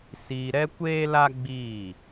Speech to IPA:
siː˧ɾɛ˦ kʷeː˦la˦ ɡ͡biː˦˨

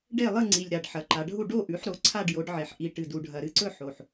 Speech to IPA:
ɖe˥˩lˠɨ˥˩ŋ͡ǀi˨˩lʲ ɾa˨˩ɖħɐ˩˧ǃa˩˧ɖʱu˥˩ ɖo˥˩ʔʉ˩˥ħɾo˩˥ ǀʰa˥˩ɖjo˩˥ɖʕe˩˧ħ ʔi˨˩ʈɨ˨˩d u˨˩ɖʱɐ˨˩ɾɨ˥˩ǀɵ˥˩ ħo˨˩ħ

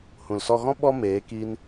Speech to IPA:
hũ˨lsɔ˧ɣɔ̃˦ ɓɔ˦meː˨˦ ki˦n

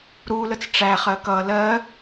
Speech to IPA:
ɾulət͡s ʈ͡ʂæχɜ kʌ lɜ

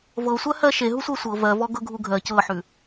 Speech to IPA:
vɤsʷɜhɜ ʃeɦusʷɜ sʷɤ vɜvɔɡɤɡʱu ɡʱɜ cɤħʉ

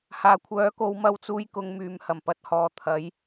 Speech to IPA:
haː˨˩kʷʰœː˨˥ko˨˧w mɐ˧wt͡suː˧jkʊ˨ŋ myː˨mhɐ˨˩mpɐ˨˥t̚hɔː˨ t̪ʰɐ˨˧j

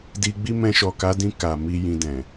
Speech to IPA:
di˧ɡ͡bi˦ mɛ̃˧ʃɔ˨ka˨˦dĩ˧ ka˨mi˧ jĩ˧dɛ̃˨

